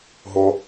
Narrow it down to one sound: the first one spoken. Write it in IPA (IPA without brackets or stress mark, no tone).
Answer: ɦ